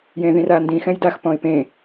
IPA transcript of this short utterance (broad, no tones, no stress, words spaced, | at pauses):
jẽðĩrandĩ xɛ̃jdax pɔ̃ɪ̯pẽ